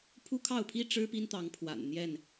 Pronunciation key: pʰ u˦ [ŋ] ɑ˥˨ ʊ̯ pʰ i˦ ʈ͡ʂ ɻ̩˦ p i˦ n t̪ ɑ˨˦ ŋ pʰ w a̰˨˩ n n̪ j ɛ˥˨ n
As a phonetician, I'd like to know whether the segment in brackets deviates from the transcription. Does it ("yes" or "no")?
yes